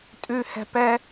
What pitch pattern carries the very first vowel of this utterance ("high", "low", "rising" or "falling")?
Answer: high